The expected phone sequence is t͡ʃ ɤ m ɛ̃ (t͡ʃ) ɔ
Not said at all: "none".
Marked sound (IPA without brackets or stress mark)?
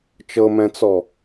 t͡s